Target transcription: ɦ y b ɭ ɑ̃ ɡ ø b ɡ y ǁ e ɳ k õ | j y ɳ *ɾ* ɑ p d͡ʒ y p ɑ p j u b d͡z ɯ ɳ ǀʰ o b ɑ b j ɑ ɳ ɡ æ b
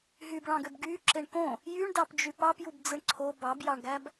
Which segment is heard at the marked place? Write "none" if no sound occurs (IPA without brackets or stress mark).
d